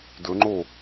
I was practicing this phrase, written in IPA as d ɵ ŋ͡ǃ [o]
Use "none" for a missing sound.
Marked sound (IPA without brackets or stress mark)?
o